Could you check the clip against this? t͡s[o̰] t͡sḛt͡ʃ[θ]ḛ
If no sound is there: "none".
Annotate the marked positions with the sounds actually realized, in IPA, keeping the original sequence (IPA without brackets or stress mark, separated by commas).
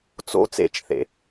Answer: o̰, θ